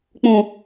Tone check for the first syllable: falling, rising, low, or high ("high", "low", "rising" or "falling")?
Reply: high